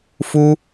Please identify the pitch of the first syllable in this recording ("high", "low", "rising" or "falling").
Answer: high